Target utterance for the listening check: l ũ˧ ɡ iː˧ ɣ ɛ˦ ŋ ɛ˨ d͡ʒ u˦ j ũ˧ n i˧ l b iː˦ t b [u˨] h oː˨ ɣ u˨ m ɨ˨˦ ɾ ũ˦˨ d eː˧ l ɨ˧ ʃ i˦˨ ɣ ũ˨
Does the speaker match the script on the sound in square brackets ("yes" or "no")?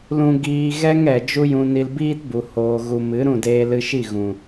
yes